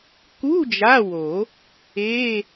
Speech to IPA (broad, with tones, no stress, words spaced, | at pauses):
ku˧˥˧ d͡ʒa˧˥˧wo˨˩˦ | e˧˥˧